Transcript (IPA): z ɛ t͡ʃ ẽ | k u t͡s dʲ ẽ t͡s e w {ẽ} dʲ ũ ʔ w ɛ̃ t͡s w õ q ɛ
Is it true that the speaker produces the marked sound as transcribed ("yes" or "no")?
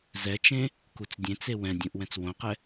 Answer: no